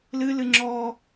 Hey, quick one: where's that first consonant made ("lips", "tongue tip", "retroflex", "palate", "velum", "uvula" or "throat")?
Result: tongue tip